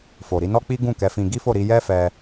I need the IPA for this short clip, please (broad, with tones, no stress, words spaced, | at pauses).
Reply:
fo˨ɾi˧nɔ˦k͡pi˦ ɡũ˦˨kɛ˨˦fĩ˧ ɡi˦fo˦˨ɾi˧ jɛ˦fɛ˧